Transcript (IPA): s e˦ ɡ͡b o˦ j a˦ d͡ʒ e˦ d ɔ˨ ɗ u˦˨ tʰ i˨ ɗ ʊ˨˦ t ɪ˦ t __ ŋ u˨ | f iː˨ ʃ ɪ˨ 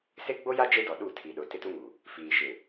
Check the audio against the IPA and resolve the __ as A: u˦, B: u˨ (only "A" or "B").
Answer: A